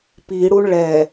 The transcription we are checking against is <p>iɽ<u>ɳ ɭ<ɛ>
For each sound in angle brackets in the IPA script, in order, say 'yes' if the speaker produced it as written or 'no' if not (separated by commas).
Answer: yes, yes, yes